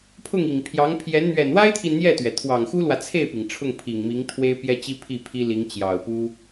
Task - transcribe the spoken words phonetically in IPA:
pʰ ʊ˥˩ ŋ i˨˩ ŋ pʰ j ɑ˧˥ ŋ pʰ j ɛ˧˥ n n̪ ɥ ɛ˨˩ n w a˥ ɪ̯ t̪ʰ i˨ n n̪ j ɛ˥˩ t̪ ɥ ɛ˩ t̪ʰ w ɑ˨˩ ŋ x u˥ l w ä˨ t͡sʰ e˥˩ ɪ̯ p i˩ ŋ ʈ͡ʂʰ ʊ˥˩ ŋ pʰ i˨˩ ŋ m i˧˥ ŋ t̪ʰ w e˥ ɪ̯ p j ɛ˥ t͡ɕ i˥ pʰ i˥˩ pʰ i˥ l i˧˥ ŋ t͡ɕ j ɑ˨˩ ʊ̯ p u˥

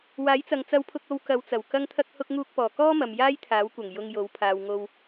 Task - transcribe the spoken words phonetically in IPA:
w aː˨˥ j t͡s ɐ˨ ŋ t͡s ɐ˧ w pʰ ʊ˧ k̚ o˧ w k ɐ˨˧ w t͡s ɐ˨˩ w k ɐ˧ ŋ t̪ʰ ɐ˧ k̚ h ʊ˧ k̚ ŋ uː˧ k̚ p ɔː˨˩ k ɔː˥ m ɐ˨ m j aː˥ j t̪ʰ aː˨˥ w kʷ ɐ˨˩ ŋ j ʊ˧ ŋ j o˨˥ w pʰ aː˨ w ŋ o˧ w

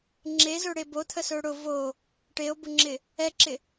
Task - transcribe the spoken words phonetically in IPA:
ŋ͡ǁ e z ɵ ɽ e b o t̪ʰ ə s ɵ ɽ ʊ v o | ʈ e o̯ b ʊ ŋ͡ǁ ɪ | ɛ ǁ ɪ

